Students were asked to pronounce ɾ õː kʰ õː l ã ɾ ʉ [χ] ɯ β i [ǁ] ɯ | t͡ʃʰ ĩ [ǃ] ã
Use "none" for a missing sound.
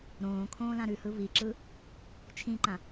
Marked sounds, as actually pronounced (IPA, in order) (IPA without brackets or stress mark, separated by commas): h, ǁ, ǃ